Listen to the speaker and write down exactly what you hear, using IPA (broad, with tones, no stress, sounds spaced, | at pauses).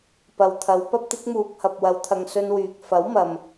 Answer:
p ɐ˨ w t̪ʰ ɐ˨˧ w p ɐ˥ p̚ t̪ ɪ˨˥ k̚ m uː˨ k̚ h ɐ˨ p̚ w ɐ˨˧ w t̪ʰ ɐ˨ ŋ s ɵ˧ n w yː˨ k̚ f ɐ˨˥ w m ɐ˨ m